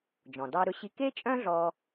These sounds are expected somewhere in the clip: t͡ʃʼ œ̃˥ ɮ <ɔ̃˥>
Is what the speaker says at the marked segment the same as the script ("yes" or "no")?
no